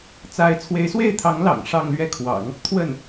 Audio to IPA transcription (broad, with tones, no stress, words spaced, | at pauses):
t͡sa˧˥ɪ̯ t͡sʰwe˧˥ɪ̯swe˥˩ɪ̯t̪ʰɑ˧˥ŋlɑ̰˨˩ŋ ʂɑ˥˧ŋlɥɛ˥˩kʰwɑ̰˨˩˦ŋ | t̪ʰwə˥˩n